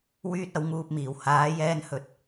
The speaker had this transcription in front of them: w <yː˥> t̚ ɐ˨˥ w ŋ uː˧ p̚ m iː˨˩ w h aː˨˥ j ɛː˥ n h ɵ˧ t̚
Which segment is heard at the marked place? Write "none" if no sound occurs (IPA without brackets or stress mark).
yː˥